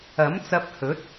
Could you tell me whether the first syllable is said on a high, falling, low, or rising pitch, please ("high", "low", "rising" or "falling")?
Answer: rising